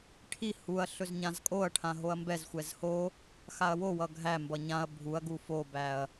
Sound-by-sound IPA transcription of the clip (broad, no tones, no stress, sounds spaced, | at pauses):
ʈʰ i h u ɐ̯ ɬ ɵ z ɲ ã z kʼ o ɐ̯ ʈʰ ã ɦ o ɐ̯ m b ɛ z xʷ ɛ z h o | x a ɐ̯ w o w ʌ ɡʱ æ m b ʌ ɲ ã ɐ̯ bʱ u ɐ̯ ɡ u f o b æ ɐ̯